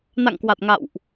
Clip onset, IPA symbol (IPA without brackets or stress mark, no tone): n